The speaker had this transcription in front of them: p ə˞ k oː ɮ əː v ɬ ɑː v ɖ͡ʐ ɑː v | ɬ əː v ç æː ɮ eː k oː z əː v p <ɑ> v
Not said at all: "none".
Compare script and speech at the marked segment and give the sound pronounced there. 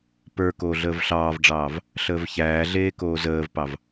ɑ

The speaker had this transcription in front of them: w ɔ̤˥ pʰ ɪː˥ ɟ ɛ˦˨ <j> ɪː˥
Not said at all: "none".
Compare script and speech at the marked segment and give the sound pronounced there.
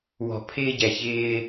ç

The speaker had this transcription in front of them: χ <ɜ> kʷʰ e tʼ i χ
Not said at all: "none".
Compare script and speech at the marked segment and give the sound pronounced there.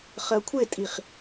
ɜ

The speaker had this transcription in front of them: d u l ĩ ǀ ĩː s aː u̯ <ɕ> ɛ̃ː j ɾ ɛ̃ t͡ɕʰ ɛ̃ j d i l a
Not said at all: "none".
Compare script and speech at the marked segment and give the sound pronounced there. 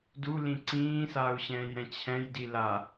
ɕ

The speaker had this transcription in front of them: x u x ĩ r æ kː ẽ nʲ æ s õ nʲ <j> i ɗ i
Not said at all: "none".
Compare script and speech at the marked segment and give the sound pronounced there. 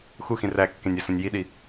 j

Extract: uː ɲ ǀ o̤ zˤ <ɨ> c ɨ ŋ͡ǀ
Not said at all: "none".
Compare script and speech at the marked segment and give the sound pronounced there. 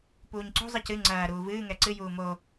ɨ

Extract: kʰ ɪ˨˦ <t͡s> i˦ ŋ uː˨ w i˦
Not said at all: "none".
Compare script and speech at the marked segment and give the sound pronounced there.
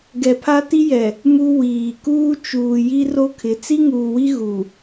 t͡s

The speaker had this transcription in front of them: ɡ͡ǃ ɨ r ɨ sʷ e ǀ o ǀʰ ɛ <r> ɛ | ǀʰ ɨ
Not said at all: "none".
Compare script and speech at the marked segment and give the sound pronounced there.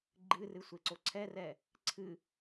r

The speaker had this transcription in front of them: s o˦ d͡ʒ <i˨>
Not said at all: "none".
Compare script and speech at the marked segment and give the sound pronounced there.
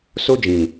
ĩ˨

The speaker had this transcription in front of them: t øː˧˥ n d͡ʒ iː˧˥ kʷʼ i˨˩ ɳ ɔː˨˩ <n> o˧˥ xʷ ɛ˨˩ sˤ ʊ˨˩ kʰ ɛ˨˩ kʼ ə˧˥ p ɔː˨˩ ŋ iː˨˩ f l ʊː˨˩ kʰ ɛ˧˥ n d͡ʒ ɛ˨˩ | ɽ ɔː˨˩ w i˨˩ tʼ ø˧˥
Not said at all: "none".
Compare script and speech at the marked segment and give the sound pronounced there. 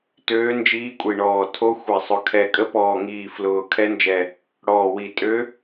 tʰ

